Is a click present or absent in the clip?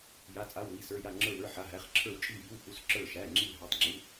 present